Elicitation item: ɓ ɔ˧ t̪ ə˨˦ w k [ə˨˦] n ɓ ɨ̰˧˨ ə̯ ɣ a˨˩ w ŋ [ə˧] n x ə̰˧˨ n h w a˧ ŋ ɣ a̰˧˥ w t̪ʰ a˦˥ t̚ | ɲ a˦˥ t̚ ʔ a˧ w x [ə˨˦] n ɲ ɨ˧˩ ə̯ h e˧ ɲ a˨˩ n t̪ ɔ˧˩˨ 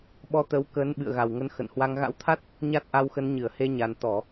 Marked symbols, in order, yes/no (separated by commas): yes, yes, yes